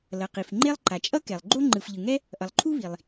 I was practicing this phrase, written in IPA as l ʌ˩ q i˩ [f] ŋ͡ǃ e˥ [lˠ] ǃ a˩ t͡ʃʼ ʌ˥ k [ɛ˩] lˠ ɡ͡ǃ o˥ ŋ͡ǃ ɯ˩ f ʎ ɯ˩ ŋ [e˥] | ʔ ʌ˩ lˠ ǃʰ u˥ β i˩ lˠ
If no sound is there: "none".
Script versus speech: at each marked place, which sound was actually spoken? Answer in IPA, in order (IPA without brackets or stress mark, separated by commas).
f, lˠ, ɛ˩, ɛ˥